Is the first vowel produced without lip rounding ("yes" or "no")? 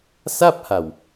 yes